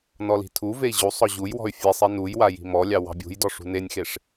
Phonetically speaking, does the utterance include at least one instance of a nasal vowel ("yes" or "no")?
no